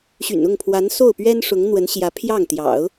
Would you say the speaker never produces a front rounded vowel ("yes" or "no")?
no